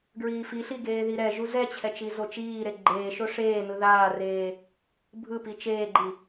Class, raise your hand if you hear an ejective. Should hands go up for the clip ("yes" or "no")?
no